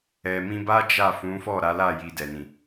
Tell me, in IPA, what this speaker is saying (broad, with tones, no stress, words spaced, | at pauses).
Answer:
ɛ˨mĩ˧ba˦ d͡ʒa˦˨fũ˨˦ fɔ˦˨ɾa˨˦la˦˨ ji˧dɛ˨nĩ˨